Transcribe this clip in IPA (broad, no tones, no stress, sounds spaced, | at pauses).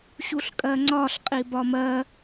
ɕ u ɬ kʼ ɜ ŋ͡ǀ ɒ ɬ qʼ i b ɒ m ɜ